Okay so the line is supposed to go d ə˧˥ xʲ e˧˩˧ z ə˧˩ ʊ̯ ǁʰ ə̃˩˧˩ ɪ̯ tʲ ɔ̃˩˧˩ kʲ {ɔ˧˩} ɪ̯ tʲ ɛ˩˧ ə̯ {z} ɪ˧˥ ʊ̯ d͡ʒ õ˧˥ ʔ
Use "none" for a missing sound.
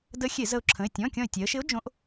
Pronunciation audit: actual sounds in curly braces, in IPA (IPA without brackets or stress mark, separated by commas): ɔ̃˧˩, ʃ